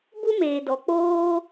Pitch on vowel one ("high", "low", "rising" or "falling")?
high